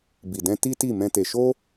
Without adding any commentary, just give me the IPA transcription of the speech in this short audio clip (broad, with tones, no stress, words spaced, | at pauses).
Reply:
bi˨dɛ̃˧ ti˦ti˦˨mɛ̃˧ te˨ʃo˧